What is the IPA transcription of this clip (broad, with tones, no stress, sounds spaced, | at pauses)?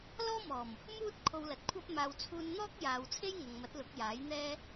l ɔː˥ m ɔː˨˩ m | m uː˥ t̚ kʰ o˧ w l ɐ˨˥ t̚ kʷʰ ɐ˥ p̚ m aː˧ w t͡sʰ uː˧ n n̪ ɔː˥ k̚ j aː˨ w t͡sʰ e˥ j ŋ ɐ˨ ŋ m ɐ˨˥ t̚ l ʊ˨˥ k̚ j aː˨˥ j n̪ ɛː˥